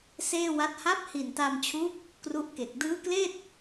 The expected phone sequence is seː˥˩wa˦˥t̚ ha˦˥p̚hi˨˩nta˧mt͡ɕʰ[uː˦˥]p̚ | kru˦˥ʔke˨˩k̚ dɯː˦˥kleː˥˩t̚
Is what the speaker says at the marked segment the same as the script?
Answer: yes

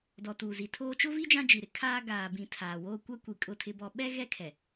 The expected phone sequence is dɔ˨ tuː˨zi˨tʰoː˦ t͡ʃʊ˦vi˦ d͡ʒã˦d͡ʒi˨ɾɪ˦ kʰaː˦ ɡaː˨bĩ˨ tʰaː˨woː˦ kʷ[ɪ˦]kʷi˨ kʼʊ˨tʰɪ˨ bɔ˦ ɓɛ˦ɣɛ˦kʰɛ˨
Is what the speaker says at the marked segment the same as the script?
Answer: no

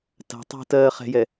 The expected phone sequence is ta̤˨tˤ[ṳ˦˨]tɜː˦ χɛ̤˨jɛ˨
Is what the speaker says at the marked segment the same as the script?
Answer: yes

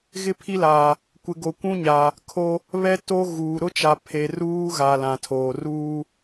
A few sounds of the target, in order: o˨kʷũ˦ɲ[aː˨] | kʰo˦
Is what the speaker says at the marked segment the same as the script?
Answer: yes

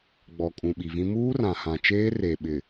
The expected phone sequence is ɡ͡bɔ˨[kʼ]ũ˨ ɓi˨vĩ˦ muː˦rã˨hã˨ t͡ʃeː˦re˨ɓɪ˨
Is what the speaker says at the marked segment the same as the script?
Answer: yes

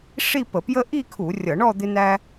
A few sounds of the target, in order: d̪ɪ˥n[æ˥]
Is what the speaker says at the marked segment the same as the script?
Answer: yes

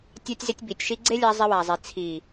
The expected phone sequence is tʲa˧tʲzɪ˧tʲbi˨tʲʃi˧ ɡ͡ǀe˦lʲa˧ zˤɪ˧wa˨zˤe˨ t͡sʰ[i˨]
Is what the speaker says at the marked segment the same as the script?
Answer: yes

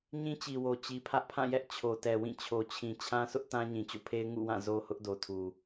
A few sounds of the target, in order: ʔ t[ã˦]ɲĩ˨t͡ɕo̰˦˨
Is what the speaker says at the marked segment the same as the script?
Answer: yes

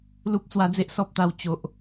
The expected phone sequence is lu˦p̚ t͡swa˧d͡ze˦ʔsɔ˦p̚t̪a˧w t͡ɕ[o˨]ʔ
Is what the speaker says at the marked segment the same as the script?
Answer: yes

